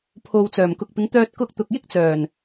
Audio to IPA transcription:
pʰ o˨ w t͡s œː˨˩ m k ʊ˨ k̚ p ɪ˨˧ ŋ t̪ œː˧ t̚ k ʊ˧ k̚ t̪ ʊ˨ k̚ j ɪ˥ k̚ t͡s œː˨˩ n

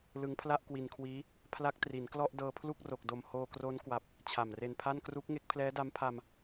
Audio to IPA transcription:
l ɯ˦˥ ŋ pʰ l a˥˩ ʔ k w i˧ n kʰ w iː˦˥ | pʰ l a˦˥ k̚ t r i˩˦ n k l ɔ˥˩ ʔ d ɤː˧ pʰ l u˥˩ k̚ r o˨˩ k̚ d o˨˩ m h oː˧ k r o˦˥ n k w a˨˩ p̚ | t͡ɕʰ a˨˩ m r e˧ n pʰ a˥˩ n k r u˦˥ k̚ ŋ e˦˥ k̚ pʰ l ɛː˦˥ d a˦˥ m pʰ a˧ m

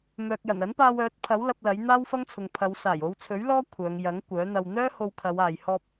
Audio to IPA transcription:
m œː˨ k̚ j ɐ˨˩ n ɐ˨˥ n p aː˧ w œː˨˥ t̚ pʰ ɐ˨˥ w l ɐ˧ p̚ l ɐ˨˥ j n̪ aː˥ w f ɐ˥ ŋ t͡sʰ ʊ˨ ŋ pʰ ɐ˨˧ w s aː˨˩ j o˨˧ w t͡sʰ ɵ˨˥ ɥ l ɔː˥ kʷʰ œː˨˧ ŋ j ɐ˨˥ ŋ kʷ œː˨˥ n̪ ɐ˧ w n̪ œː˥ h o˧ w kʰ ɐ˨˧ w aː˨ j h ɔː˧ p̚

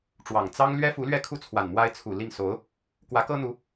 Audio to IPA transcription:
ʈ͡ʂ w ɑ˨˩ ŋ t͡s ɑ˥ ŋ l ɥ ɛ˥ f u˧˥ l ɥ ɛ˥˧ kʰ u˥˩ t͡sʰ w a˨˩ n m w a˥ ɪ̯ t͡sʰ u˨˩ l i˥˩ ŋ s o˧˥ ʊ̯ | k w ä˧˥ k ɤ˥ n̪ u˧˥

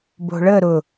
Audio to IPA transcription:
b o̤ ɭ ə ɾ ʊ

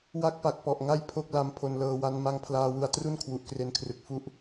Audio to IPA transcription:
w a˦˥ k̚ p a˨˩ k̚ p ɔ˨˩ ʔ ŋ a˥˩ j pʰ o˥˩ k̚ l a˦˥ m pʰ o˧ n l ɤː˧ w a˦˥ n m a˦˥ ŋ pʰ l aː˧ w u˧ a̯ t r u˥˩ n kʰ w u˨˩ ʔ k r e˧ n kʰ r ɯ˨˩ k̚ f u˦˥ ʔ

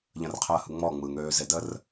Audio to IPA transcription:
ʎ ə̃ r qʰ əː h ɯ ŋ͡m ɔ ŋ͡m ɯ ŋ øː z e d ə r

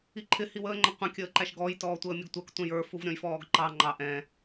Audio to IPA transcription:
i ǃʰ ɪ h i w əː ŋ͡ǃ ə qʷ ɛ̃ kʲ əː ǃ æ ʃ ɡ ɔ j t ɔː tʷ əː mʲ ʊ ɡ tʷ əː k tʷ ɛ̃ j ə˞ f u v ɾʲ ɔ̃ j f ɔː ɡ ǃ ɑ ŋ͡ǃ ɑ ʔ ɛ̃

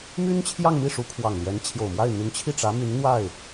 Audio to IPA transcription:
m y˥ n t͡ɕʰ j ɑ˥˧ ŋ m i˥˩ ʂ u˧˥ kʰ w ɑ˨˩ ŋ l j ɛ˧˥ n t͡ɕʰ j o˨˩ ʊ̯ m w a˥˩ ɪ̯ n̪ y˧˥ n t͡ɕʰ i˥˩ ʈ͡ʂ ä˧˥ m y˧˥ n n̪ w a˥˩ ɪ̯

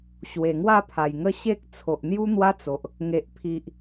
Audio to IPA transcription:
ɕ w e˨˩ ŋ w a˥˧ pʰ a˨˩ j ŋ ə˥˧ ɕ e˦ k̚ t͡sʰ o˨ ʔ n̪ j u˦ n̪ w a˦ t͡s o˨ ʔ | ŋ e˨ ʔ pʰ i˨ ʔ

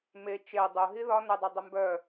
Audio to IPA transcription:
m e t͡ʃ e dˤ ʊ ɦ i ð ɒ n ʊ dˤ u dˤ ʊ m b œ

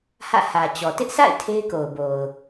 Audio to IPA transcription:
h ä̰˦˨ h ä˨ t͡ɕ ɔ˨ t ɪ˦ ʔ sʰ a̰˦˨ ɪ̯ tʰ e˦ ɪ̯ k o˨ ʊ̯ b o˨ ʊ̯

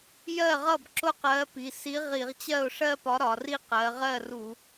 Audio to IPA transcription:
j ɜ˥˩ ʁ ʌ˥˩ b ǁ ʊ˥˧ q ɜ˨˥ p i˩˧˩ s i˨˥ ʁ i˧˩˧ ʁ t͡ɕ ɜ˥˩ ʊ̯ ʂ ɜ˥˧ p ɒ˨˥ ɾ ɒ˩˧ r i˥˧ q ɜ˩˧ ʁ ɜ˥˩ r u˧˩˧

